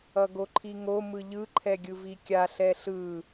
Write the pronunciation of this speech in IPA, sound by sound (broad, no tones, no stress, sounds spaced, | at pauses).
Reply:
ʌ ɡ o ǃʰ i ŋ o m ɯ ʎ ɯ ǃʰ ɛ ɡʲ ɯ v i kʲ a ɬ ɛ ɬ ɯ